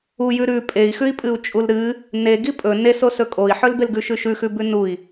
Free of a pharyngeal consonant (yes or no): no